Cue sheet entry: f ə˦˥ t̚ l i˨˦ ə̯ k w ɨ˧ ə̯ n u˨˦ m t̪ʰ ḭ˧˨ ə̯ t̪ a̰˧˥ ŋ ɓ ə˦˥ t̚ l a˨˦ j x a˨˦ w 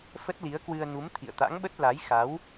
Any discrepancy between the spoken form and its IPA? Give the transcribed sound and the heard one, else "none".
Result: none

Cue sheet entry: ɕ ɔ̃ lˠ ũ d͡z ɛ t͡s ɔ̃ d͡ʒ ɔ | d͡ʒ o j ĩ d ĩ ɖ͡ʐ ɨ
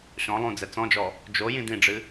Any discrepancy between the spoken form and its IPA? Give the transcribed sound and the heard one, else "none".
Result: none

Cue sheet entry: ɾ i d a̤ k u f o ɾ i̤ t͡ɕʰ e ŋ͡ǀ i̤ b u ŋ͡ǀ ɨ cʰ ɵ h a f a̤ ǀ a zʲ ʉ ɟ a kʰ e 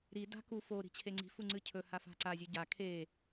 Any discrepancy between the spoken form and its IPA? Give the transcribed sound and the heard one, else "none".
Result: b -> f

